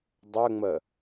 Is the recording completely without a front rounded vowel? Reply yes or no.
no